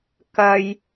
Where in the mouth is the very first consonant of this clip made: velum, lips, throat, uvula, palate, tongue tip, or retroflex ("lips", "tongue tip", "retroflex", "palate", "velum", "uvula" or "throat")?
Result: velum